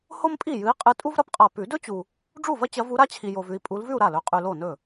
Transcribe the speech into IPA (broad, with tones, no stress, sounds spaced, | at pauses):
h o˥ m pʼ i˥˩ j ɨ˨˦ i̯ qʼ ɨ˨˦ tʼ u˥ v ɾ ɐ˥ p qʼ a˨ p ʉ˨˩˦ d ɵ˥ t͡ɕ u˨ | ɖ͡ʐ u˥˩ v ɐ˥ t͡ɕ ɐ˨˦ v u˨˦ ɾ a˥ t͡ɕʰ i˨ j o˨ v ʉ˨ i̯ pʼ u˨˦ l v ʉ˥˧ u̯ ɾ a˥˩ l ɵ˨˦ qʼ ʉ˨ l o˥˩ n ɵ˥˩